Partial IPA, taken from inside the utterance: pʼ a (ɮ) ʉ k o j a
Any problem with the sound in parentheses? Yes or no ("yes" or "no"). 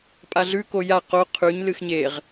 no